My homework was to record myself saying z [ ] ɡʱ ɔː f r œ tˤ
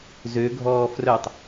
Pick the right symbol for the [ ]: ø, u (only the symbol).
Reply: ø